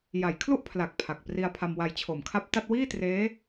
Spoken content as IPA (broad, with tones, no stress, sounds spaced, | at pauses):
j a˩˦ j kʰ l u˥˩ ʔ pʰ l a˨˩ k̚ pʰ a˨˩ k̚ p r i˧ a̯ pʰ a˧ m w a˧ j t͡ɕʰ o˨˩ m kʰ a˦˥ p̚ t a˥˩ t̚ w iː˥˩ t r eː˦˥